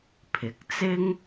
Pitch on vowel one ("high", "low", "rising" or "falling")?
rising